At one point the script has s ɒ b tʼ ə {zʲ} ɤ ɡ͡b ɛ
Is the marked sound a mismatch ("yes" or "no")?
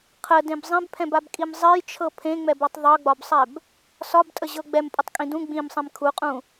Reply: yes